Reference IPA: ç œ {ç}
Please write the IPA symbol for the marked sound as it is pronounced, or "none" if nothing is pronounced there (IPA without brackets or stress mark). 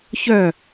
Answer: none